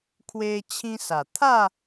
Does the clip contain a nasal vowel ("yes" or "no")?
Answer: yes